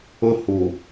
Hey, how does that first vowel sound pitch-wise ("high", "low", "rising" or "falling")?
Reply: high